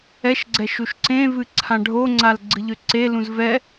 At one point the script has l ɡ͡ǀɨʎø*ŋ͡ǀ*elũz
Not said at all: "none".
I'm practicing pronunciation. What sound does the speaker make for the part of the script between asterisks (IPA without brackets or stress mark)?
ǀ